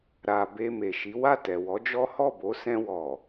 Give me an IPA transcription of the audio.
ɾa˨be˧ me˨ʃi˨˦ wa˦˨tɛ˨ wɔ˨˦d͡ʒɔ˦ hɔ˦˨bo˨˦ sɛ̃˧wɔ˨

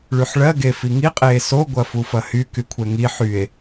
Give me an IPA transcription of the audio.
ɭyħɭɜ ɡefiŋi qʼeːso ɡʷɐfufɐhy kykʷʰɛŋi ħye̯

